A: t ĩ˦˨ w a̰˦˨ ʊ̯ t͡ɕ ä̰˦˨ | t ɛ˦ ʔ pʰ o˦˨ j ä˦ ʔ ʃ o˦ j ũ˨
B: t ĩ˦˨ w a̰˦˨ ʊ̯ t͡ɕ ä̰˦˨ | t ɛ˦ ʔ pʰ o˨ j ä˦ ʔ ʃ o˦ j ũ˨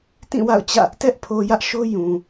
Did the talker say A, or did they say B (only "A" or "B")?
B